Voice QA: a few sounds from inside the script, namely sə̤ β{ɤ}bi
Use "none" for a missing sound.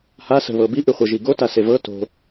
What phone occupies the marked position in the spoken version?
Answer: ɤ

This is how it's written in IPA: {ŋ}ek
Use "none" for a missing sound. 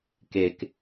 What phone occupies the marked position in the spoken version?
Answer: k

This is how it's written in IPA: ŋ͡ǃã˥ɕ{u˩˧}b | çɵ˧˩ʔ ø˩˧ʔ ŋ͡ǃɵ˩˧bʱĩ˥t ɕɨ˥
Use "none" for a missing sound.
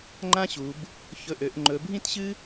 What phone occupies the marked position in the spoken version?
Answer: u˩˧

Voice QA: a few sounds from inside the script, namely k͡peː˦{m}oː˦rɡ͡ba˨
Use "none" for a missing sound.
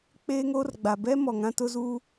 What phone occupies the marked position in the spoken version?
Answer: ŋ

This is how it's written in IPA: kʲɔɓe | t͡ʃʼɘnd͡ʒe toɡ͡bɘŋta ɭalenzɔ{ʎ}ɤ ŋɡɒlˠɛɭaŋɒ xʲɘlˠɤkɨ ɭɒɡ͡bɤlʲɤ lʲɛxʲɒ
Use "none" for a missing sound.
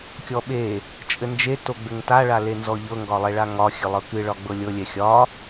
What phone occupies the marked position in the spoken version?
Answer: ʎ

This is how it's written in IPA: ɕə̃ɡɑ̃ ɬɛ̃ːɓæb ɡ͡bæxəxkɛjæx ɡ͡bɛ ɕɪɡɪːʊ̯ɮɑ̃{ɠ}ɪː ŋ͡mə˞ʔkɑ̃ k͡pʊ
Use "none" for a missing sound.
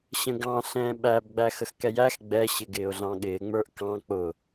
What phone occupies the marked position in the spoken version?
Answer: ɠ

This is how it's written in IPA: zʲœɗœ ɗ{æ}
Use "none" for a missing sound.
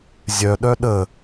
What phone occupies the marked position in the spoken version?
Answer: ə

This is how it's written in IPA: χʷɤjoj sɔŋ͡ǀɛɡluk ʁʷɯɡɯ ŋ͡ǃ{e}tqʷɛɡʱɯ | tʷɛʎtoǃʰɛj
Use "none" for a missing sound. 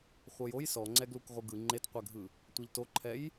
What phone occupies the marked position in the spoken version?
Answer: e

